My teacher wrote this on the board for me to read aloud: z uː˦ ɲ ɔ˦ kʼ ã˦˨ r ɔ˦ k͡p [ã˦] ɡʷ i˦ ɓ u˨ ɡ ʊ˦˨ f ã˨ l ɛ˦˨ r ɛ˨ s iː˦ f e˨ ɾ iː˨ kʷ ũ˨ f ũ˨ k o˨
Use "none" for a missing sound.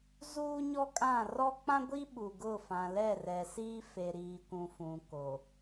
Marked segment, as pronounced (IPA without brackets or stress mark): ã˦